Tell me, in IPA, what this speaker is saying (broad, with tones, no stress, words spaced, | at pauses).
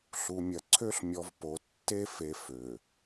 ɬu˨mʲɐ˨ǀʰø˦ɬ mʲɔ˨v po˨ tːe˦fe˨ fø˨